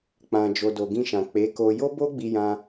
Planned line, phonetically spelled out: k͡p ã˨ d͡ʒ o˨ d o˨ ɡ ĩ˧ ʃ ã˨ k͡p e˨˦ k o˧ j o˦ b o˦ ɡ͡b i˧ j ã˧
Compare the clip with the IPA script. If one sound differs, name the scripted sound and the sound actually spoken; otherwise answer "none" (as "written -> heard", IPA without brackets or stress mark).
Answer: none